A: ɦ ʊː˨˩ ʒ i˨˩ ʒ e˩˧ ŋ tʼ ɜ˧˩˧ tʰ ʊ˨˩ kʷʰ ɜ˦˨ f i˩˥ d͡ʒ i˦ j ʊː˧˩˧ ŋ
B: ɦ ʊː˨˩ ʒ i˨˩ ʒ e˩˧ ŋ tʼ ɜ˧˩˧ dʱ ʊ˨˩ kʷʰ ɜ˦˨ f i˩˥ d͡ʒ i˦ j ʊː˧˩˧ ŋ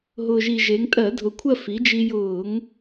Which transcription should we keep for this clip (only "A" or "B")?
B